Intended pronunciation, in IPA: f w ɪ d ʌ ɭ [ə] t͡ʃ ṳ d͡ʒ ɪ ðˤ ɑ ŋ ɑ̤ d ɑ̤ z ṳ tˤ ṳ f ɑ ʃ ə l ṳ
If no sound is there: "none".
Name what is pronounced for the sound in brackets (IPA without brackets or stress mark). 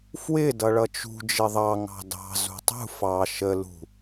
ʌ